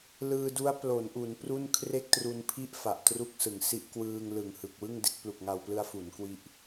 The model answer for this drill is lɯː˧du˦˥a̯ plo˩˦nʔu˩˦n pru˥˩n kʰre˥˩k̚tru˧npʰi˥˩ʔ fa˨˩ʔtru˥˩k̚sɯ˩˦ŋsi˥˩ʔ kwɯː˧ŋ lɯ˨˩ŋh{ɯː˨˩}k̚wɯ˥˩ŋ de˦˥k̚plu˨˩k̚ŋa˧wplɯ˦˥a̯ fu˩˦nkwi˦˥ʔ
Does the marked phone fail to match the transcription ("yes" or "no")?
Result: yes